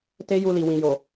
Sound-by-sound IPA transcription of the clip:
t e˦ j u˧ l i˨ w ĩ˨ j o˨

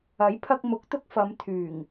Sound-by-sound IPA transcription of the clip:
ɐ˨˥ j pʰ ɐ˧ k̚ m ʊ˨˥ k̚ t̪ ʊ˧ k̚ f ɐ˨˧ m t̪ʰ yː˨˩ ŋ

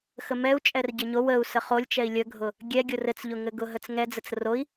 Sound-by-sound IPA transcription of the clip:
x ə m ɛ u̯ t͡ʃʼ ɛ r ɟ ɘ ɲ o w ə u̯ s ə χ o lʲ t͡ʃ ɛ i̯ lʲ ə ɡʱ ʊ | ɡʲ ɛ ɡʲ ʊ r ɘ t͡s ʎ ʊ ŋ ɘ ɡ ʊ ɦ ə t͡s ŋ ɛ d͡z ə t͡s r o i̯

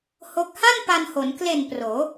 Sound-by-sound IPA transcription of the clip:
h o˦˥ k̚ h a˥˩ n p a˧ n h o˩˦ n k l e˨˩ n p r oː˩˦

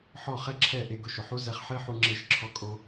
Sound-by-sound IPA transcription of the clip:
ħ ɔ˥˩ χ ɛ˥ ǁʰ ɛ˥˩ ʔ e˧ ɡ ʊ˧ ʃ ʊ˩ ħ u˥ z ɛ˧ χ ħ e˥ ħ u˧ ŋ͡ǁ e˥˩ ʃ ǁʰ ɔ˥ kʼ o˥

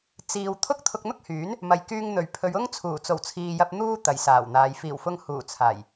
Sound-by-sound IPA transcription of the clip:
t͡s iː˨ w t̪ʰ ʊ˥ k̚ t̪ʰ ʊ˧ k̚ n̪ ʊ˥ k̚ h yː˨˥ n | m ɐ˨ j k yː˧ ŋ n̪ ɵ˨˩ ɥ pʰ ɵ˨˧ ɥ ʊ˥ ŋ t͡sʰ uː˨˩ t͡s o˨˩ w t͡sʰ iː˨ j ɐ˧ p̚ n̪ uː˥ t̪ ɐ˨ j s aː˨˩ w n̪ aː˨˧ j f iː˨˩ w f ʊ˧ ŋ h uː˨˩ t͡sʰ aː˨˩ j

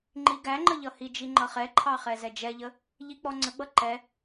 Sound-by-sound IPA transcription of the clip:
ŋ͡ǃ i ɡ æ ŋ͡ǃ ə ʎ ʌ h i d͡ʒ i ŋ͡ǃ ʌ χ ɛ ǃʰ ɑ χ ɛ z ɛ d͡ʒ ɛ ʎ ə | ʎ i k͡p ɔ ŋ͡ǀ ə ɡ͡b ʌ ǃ ɛ

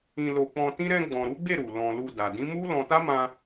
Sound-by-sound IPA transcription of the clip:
ĩ˧ l o˧ k͡p ɔ̃˧ t ĩ˦ ɾ ɛ̃˧ ɡ͡b ɔ̃˨ ɾ u˨˦ ɡ͡b e˦˨ ɾ u˨ l ɔ̃˨ l u˧ d a˨ d ĩ˨˦ m u˦ l ɔ̃˧ t a˦ m ã˧

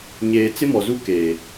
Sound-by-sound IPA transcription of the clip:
ɲ eː˨ t͡s ɪ˦ m ɔ˨ z u˦ k eː˨

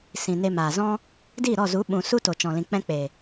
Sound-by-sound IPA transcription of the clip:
s ĩ˨ n e˧ m aː˨ z ɔ̃˧ | d i˦˨ ɾ ɔ˦˨ z u˨˦ ɓ ũ˨ s u˦ t o˨ t͡ʃ ɔ̃˨ l ĩ˨ k͡p ɛ̃˦ k͡p e˨

